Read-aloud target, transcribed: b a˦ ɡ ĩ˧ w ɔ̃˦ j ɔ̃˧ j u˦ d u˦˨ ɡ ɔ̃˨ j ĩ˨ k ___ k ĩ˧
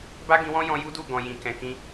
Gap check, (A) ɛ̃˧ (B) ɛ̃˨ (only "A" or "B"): B